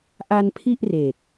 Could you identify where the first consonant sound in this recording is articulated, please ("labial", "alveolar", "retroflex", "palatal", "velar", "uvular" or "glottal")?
glottal